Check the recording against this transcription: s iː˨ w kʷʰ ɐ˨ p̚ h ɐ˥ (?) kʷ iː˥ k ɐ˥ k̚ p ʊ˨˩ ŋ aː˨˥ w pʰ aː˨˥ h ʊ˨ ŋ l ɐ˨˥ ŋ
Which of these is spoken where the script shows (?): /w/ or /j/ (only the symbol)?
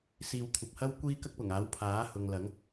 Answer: w